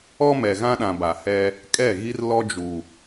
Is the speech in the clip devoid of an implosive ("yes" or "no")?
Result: no